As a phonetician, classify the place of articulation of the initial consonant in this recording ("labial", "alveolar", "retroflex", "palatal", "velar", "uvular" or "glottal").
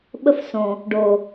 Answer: labial